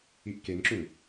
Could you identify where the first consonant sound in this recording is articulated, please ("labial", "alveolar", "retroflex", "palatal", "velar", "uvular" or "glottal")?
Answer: glottal